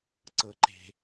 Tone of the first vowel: low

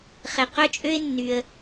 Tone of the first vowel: low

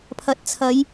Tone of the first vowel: rising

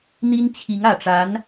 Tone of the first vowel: high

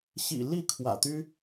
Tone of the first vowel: low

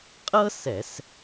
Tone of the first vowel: high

